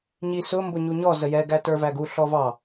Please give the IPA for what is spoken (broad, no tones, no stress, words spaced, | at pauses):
ɲisʊ mbʊɲuɲɔ zəjɛ ɡætə˞væɡu ɬɔvɑ